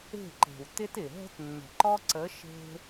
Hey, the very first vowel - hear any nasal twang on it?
no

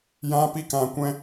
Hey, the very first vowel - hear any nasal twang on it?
yes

